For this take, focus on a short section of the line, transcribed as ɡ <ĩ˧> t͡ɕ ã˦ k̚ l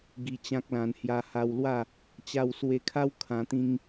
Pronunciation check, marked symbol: incorrect: i˧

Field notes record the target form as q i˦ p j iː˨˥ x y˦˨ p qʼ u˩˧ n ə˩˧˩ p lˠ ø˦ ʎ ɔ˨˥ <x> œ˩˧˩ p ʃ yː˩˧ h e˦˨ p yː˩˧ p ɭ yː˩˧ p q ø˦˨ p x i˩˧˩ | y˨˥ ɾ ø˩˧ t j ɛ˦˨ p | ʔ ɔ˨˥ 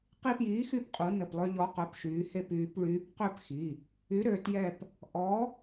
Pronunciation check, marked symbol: incorrect: q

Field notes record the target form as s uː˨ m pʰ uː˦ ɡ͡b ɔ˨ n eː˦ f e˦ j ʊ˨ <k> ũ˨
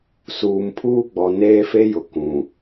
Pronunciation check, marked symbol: correct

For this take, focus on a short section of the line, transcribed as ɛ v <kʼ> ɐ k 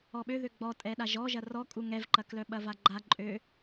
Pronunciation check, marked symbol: incorrect: ǃ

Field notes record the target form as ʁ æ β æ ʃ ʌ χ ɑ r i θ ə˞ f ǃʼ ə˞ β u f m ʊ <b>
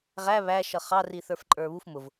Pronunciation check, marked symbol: incorrect: v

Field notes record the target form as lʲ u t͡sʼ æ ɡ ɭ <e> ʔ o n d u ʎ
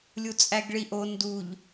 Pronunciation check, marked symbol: incorrect: i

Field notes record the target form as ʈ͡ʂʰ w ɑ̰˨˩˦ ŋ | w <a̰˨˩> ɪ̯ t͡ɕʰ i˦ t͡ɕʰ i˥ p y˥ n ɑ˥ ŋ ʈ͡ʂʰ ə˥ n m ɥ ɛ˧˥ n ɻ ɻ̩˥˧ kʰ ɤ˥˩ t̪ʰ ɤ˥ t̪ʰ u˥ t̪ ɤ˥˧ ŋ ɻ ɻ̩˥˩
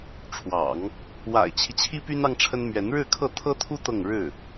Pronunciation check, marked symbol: correct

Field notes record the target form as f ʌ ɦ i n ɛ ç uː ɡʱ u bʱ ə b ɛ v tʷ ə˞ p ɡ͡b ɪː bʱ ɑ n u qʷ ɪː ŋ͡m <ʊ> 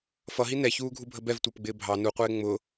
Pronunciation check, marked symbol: correct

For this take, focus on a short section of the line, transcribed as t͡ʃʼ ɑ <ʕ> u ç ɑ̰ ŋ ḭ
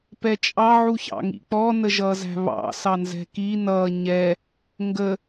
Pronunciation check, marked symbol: correct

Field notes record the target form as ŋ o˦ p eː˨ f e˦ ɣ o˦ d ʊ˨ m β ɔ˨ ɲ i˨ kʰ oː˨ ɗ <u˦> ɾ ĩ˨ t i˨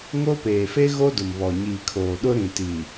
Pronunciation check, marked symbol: incorrect: ʊ˦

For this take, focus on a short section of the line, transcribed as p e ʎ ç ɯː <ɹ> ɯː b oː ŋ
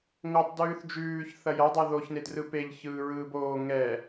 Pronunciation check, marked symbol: correct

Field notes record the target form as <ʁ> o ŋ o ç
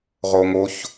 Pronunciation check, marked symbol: correct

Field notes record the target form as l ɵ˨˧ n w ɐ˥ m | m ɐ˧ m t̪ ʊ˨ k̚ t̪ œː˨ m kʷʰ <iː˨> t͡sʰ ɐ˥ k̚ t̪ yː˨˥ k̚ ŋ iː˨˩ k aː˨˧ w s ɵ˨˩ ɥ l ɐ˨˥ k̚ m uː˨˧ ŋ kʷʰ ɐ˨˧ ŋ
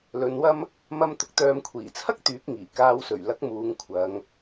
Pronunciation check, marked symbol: incorrect: iː˨˩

